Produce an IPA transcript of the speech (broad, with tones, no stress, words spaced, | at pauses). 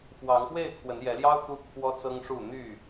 fwɑ˨˦ŋpwe˥˨ɪ̯ kʰwə˨˦njɛ˨˦ljɑ˦ʊ̯ t̪u˦kʰwɔ˦t͡sɤ˦ŋʂu˥˨ n̪y˥˨